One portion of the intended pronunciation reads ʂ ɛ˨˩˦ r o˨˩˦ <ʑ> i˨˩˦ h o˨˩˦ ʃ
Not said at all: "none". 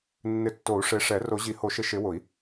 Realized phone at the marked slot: ʑ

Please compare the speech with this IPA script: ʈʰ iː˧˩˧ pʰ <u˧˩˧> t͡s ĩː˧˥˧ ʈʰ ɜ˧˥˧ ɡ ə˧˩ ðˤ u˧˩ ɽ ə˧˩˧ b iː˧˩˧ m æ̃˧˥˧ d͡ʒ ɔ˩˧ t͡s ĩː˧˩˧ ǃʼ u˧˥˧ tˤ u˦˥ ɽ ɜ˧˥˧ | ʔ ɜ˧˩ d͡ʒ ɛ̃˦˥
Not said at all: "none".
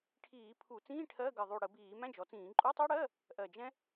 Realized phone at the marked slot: u˧˩˧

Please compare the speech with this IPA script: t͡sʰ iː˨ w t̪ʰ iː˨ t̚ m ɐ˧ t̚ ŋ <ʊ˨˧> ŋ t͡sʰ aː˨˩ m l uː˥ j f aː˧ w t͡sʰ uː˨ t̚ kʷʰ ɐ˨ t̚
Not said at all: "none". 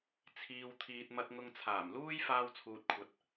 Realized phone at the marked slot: ʊ˧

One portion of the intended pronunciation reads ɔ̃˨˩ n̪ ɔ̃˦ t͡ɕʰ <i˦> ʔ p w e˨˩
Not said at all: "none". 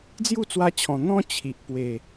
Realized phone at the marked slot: i˨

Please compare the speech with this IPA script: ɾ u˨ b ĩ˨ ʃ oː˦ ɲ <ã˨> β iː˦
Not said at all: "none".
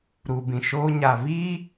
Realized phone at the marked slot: a˨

